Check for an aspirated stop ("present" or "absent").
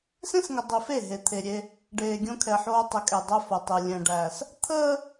present